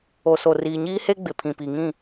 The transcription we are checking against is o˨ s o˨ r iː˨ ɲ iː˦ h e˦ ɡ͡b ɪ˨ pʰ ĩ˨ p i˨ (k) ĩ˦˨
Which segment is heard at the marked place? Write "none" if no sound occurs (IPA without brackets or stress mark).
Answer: ŋ